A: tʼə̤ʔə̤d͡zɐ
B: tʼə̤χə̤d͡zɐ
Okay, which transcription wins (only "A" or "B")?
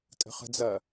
B